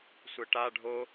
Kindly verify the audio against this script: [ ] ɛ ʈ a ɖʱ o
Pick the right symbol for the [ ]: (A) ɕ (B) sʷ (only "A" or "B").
B